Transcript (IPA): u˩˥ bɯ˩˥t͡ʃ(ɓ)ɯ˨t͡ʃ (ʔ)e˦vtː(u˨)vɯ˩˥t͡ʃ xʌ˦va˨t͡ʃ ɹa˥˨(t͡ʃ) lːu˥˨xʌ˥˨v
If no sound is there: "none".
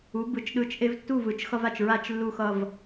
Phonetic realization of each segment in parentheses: ɗ, ʔ, u˥˨, t͡ʃ

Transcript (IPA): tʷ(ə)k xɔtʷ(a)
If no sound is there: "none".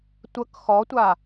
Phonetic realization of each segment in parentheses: ə, a

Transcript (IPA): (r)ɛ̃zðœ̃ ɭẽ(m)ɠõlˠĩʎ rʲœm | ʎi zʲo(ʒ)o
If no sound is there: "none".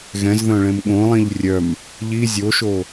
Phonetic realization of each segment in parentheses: ɣ, m, ʃ

